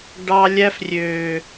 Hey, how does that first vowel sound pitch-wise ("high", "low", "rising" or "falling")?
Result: high